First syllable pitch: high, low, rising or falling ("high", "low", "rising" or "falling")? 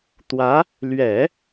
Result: rising